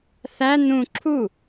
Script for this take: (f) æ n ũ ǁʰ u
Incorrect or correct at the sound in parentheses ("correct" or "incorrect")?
incorrect